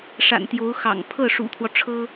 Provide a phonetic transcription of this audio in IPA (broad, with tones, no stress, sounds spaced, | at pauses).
ʂ a̰˨˩ n t̪ j o˧˥ ʊ̯ x ɑ̰˨˩ ŋ pʰ ɤ˥˩ ʂ ṵ˨˩ t̪ʰ w ɔ˦ ʈ͡ʂʰ ɤ˥